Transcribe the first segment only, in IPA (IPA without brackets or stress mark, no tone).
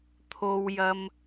t̪ʰ